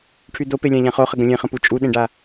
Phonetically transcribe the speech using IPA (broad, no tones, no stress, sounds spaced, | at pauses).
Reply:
ʈʰ y d o p e lʲ ã ʎ ã χ o χ ə ɡ ə̃ lʲ ẽ χ ə̃ p u t͡ʃʼ u ɗ ẽ ɖ a